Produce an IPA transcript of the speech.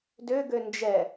d ø ɡ ø n d͡ʒ ɛ

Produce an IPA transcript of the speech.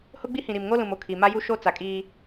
h ʊ˦ ɡ͡b i˦ h ĩ˨ ɾ i˨ m ŋ o˦ l ũ˨ m o˨ kʰ i˨ m a˦ j u˦ ʃ o˦ t͡s a˨ kʼ iː˦

